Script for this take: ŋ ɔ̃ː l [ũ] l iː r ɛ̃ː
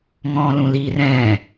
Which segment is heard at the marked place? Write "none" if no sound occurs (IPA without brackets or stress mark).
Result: ũ